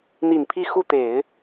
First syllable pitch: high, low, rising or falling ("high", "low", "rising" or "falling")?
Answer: low